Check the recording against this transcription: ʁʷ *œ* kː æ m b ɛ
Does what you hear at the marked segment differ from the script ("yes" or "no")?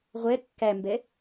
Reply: yes